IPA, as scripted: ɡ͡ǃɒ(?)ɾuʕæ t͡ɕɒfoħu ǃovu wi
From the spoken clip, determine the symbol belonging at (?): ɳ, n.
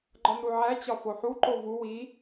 n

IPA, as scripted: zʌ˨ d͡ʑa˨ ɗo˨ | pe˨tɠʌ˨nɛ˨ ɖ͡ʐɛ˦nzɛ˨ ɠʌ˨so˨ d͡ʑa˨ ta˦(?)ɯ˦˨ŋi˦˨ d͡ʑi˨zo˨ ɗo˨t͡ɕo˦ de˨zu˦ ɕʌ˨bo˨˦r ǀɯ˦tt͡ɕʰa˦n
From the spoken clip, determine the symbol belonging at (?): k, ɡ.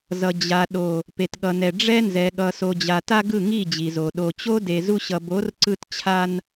ɡ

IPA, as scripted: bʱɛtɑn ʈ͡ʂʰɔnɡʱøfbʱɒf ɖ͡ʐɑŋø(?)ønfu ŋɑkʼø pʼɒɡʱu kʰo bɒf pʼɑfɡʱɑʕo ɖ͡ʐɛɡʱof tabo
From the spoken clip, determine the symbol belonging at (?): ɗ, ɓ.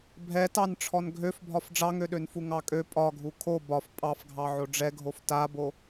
ɗ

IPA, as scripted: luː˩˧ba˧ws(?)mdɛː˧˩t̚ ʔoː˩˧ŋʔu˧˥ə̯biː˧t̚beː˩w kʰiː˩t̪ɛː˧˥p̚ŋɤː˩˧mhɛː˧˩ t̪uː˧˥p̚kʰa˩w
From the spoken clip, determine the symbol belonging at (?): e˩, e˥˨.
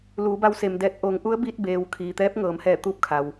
e˩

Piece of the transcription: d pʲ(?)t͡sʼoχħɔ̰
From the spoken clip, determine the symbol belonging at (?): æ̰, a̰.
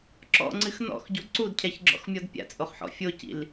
a̰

